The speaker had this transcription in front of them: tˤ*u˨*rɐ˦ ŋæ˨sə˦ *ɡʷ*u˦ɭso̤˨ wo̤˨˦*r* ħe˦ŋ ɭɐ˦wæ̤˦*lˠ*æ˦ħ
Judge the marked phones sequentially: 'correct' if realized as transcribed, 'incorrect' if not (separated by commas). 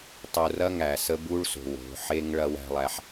correct, incorrect, incorrect, correct